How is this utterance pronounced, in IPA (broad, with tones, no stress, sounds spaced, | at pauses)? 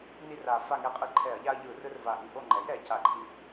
n i˦˨ r a˨˩ f a˦˨ ŋ ɛ˦˨ qʼ ɯ˦ ǃʰ ɛ˧˩˧ ɐ̯ ʎ a˦ ɐ̯ ʎ ɯ˧˩˧ r ɯ˦ r v a˨˩ ʔ i˩˧ ʔ o˦˨ ŋ͡ǃ ɛ˩˥ j ɾ ɛ˩˧ c a˨˩ ǃʰ i˨˩